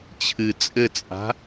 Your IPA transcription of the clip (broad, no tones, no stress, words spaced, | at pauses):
t͡ɕʰɨ t͡sʼɘt͡sʼa̤